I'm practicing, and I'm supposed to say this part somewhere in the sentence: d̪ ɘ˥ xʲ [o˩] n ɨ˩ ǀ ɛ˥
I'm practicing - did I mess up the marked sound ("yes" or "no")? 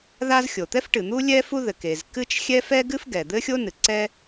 yes